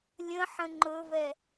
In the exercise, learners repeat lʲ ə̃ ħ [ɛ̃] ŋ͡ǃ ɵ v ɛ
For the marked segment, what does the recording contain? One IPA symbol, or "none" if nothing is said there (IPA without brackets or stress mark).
ə̃